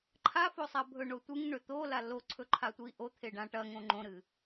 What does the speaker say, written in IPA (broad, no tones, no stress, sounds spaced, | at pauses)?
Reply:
ǃʰ a f o sˤ a bʱ ɵ ɳ o tʷ ɨ ŋ ɳ ɵ t̪ o l a l o ǀʰ ɵ ǃʰ a tʷ i ʔ o t̪ʰ e ɖ ã ʈ ɐ ŋ õ ŋ͡ǃ õ ɾ ɨ